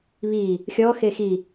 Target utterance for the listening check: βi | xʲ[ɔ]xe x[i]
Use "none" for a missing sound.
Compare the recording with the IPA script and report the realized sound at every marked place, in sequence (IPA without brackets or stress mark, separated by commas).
ɔ, i